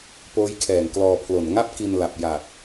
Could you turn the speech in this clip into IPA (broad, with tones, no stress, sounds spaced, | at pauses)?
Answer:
p oː˦˥ j kʰ ɛː˨˩ ŋ k l ɔː˧ pʰ l o˨˩ n ŋ a˥˩ p̚ k i˧ n l a˨˩ p̚ j a˨˩ k̚